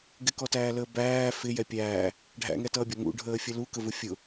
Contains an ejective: no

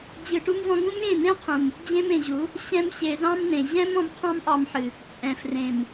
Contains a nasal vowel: yes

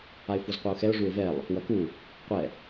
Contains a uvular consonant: yes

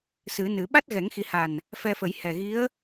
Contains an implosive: yes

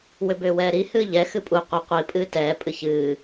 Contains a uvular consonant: yes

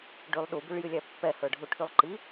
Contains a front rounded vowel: yes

